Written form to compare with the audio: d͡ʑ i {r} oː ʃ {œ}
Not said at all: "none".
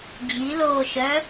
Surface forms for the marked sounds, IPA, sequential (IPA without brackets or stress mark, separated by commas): l, œ